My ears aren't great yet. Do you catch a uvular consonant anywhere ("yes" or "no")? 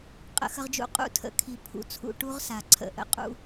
yes